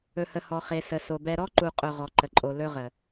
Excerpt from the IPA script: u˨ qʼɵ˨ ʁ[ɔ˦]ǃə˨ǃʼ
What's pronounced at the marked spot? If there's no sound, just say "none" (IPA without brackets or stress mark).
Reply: ɔ˨